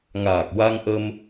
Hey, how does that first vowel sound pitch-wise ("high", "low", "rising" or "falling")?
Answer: low